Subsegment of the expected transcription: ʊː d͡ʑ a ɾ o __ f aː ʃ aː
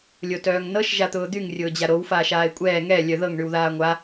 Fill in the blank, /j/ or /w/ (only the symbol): w